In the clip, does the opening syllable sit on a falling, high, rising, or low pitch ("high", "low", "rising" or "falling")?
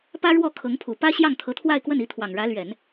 high